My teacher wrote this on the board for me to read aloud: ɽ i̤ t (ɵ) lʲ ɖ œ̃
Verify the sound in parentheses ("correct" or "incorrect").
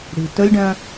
correct